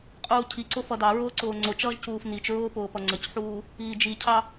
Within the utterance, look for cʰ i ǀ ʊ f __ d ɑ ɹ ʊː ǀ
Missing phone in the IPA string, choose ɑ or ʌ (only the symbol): ʌ